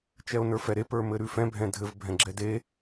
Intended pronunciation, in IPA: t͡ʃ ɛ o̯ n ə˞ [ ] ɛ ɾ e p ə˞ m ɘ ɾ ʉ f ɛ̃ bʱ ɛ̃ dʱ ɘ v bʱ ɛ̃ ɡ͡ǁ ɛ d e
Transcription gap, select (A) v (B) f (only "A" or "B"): B